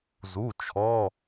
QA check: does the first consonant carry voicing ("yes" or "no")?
yes